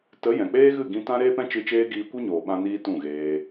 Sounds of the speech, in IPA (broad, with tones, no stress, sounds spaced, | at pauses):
t ə˨˦ j ɛ̃˨ k͡p eː˦ ɣ ɨ˦˨ ɡ ĩ˧ t ã˦ ɾ eː˦ p ɛ̃˦ t͡ʃ ɨ˧ t͡ʃ eː˦ ɡ iː˧ kʷ i˦ ɲ oː˨ ɓ ã˧ n iː˧ t ũ˦˨ ɣ eː˧